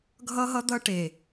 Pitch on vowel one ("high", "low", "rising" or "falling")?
high